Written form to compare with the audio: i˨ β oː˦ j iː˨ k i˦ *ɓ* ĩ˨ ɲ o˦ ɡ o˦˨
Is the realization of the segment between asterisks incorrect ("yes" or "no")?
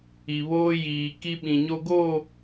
no